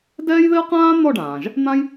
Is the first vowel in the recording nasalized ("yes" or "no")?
no